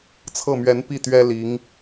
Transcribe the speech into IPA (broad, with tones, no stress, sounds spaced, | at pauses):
t͡sʰ ɤ˥˩ m ɥ ɛ˧˥ n p i˥˩ t̪ ɥ ɛ˥ l i˧˥ ŋ